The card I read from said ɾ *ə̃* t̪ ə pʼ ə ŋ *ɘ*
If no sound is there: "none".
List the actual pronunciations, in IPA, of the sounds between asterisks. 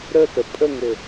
ə, ɘ

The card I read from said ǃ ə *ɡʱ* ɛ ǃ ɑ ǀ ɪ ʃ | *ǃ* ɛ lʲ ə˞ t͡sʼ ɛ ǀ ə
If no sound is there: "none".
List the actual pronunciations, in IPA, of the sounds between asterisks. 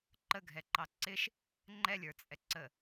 ɡʱ, ŋ͡ǃ

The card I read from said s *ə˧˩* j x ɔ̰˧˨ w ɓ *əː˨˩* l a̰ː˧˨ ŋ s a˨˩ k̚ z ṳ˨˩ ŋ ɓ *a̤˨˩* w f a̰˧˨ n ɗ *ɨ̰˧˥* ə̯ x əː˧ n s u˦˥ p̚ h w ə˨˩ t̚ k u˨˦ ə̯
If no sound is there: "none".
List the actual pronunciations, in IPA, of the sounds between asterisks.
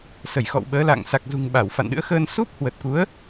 ə˧˩, əː˨˦, a˧˩, ɨ̰˧˥

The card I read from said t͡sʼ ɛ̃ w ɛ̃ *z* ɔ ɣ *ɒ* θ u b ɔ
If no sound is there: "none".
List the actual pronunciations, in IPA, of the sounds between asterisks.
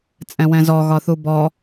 z, ɒ

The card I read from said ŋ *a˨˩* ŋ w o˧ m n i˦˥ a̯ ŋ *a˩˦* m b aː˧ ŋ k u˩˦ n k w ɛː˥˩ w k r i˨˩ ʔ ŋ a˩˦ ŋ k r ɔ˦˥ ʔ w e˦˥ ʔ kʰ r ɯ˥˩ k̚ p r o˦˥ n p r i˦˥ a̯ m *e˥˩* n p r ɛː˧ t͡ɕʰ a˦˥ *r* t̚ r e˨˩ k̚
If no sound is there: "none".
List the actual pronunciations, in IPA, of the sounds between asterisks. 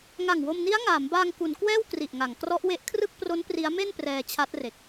a˨˩, aː˩˦, e˥˩, none

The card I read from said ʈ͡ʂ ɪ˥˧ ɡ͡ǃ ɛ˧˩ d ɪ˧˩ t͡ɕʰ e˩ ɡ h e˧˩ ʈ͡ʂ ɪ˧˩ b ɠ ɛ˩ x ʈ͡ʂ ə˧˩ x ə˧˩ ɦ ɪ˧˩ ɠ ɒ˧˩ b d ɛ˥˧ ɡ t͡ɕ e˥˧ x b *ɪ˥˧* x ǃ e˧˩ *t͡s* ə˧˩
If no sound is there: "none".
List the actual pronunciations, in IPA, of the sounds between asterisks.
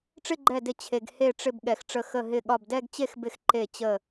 ɪ˧˩, t͡ɕ

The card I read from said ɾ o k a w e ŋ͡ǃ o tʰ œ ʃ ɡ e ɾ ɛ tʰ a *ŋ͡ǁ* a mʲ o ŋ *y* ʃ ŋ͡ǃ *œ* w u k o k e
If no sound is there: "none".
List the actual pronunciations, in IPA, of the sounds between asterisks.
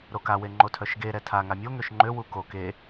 ŋ, ø, ø

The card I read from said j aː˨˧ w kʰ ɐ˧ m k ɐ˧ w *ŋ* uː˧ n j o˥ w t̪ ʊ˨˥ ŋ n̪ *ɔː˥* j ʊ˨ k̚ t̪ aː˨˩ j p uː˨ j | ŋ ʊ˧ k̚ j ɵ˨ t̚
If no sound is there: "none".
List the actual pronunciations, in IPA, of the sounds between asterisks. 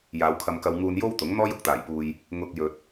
ŋ, ɔː˥

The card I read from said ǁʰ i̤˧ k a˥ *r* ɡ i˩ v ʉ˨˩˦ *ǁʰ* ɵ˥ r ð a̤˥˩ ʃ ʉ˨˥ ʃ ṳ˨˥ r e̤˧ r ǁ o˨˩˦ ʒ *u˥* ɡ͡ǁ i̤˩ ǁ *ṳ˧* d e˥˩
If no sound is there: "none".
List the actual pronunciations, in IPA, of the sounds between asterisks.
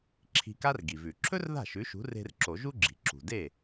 r, ǁʰ, u˥, ṳ˩

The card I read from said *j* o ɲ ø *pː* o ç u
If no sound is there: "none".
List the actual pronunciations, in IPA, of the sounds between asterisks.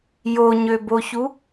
j, b

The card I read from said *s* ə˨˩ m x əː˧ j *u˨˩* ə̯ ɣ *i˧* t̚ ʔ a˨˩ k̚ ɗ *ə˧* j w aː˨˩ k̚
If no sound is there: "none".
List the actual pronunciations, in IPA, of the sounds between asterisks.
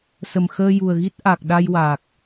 s, u˨˩, i˦˥, a˧

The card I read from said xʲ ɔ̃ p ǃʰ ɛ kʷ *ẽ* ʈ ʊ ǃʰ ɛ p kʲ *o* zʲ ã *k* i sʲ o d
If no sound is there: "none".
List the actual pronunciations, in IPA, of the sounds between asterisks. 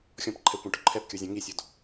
ẽ, o, ŋ

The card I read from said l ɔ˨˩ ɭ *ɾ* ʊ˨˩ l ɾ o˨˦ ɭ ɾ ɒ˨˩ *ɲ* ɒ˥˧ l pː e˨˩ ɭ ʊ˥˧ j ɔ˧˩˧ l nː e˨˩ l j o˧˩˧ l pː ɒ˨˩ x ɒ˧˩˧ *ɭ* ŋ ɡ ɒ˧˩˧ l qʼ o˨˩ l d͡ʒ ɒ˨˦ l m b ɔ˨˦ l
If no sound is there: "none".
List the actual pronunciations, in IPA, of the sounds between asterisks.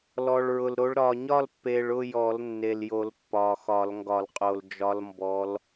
ɹ, ɲ, l

